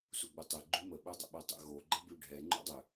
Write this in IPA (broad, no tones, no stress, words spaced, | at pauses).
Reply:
suɡ͡butˤɛ ɡ͡ǃymə ɓødˤə̰ɓœtˤə̰ ɣo ɡ͡ǃəbyɖʱɛ ŋ͡ǃṵdˤø